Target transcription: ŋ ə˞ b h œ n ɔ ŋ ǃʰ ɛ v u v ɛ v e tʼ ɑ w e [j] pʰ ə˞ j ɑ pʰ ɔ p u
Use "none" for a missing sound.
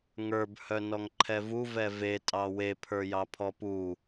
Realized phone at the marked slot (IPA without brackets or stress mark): none